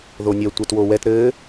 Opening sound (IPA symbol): ð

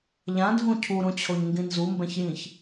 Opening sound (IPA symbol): ʎ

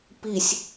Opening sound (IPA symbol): p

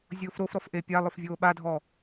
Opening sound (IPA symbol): zʲ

